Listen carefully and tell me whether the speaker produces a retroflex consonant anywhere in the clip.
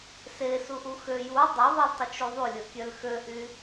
no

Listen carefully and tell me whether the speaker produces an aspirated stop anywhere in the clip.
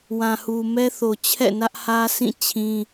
yes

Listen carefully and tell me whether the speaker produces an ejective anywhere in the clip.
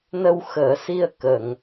no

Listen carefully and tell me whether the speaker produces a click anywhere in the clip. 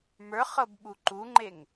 yes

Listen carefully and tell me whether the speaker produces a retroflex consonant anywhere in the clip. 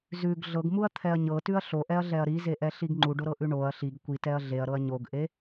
yes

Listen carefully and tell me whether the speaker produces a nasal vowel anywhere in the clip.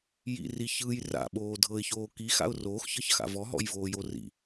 no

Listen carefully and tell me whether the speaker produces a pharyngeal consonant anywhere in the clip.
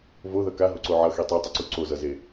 yes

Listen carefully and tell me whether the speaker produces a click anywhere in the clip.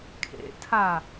no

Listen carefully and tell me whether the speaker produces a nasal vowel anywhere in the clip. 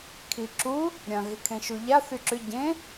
yes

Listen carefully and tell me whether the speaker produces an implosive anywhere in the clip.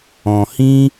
no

